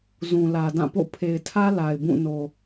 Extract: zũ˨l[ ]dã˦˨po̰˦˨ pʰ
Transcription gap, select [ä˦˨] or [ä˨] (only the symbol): ä˨